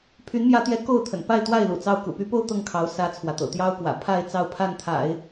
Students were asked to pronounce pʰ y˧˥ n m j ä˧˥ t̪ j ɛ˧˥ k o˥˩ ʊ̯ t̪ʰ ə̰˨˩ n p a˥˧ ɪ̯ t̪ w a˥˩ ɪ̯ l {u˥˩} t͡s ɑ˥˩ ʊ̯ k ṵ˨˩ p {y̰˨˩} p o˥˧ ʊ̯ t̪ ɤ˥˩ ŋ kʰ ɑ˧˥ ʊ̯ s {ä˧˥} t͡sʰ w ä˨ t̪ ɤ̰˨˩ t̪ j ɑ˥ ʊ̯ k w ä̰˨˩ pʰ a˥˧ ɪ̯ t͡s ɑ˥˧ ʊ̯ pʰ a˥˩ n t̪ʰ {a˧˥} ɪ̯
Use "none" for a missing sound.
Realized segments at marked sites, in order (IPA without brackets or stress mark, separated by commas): ṵ˨˩, y˧˥, ä˥, a̰˨˩˦